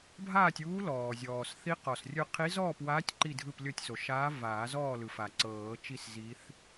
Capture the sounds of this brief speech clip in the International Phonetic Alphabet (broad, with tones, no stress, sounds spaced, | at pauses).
bʱ aː˥˨ tʲ uː˧˥ l ɔː˩ zʲ ɔː˩ s θ i˧˥ q ɔ˩ s rʲ ɯ˧ qʰ i˧˥ z ɔː˥˨ p w aː˧˥ tʲ ǃ i˥˨ dʱ ɯ˥˨ p lʲ ɤ˥˨ tʲ s o˩ ʃ aː˧˥ v aː˨˩˦ z ɔː˥˨ l ɯ˩ f a˩ ǀ ɤː˨˩˦ t͡ʃ i˥˨ s z i˧˥ θ